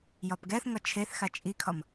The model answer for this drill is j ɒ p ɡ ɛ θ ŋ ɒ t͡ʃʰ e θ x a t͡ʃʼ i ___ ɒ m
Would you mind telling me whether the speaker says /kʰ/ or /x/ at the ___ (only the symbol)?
kʰ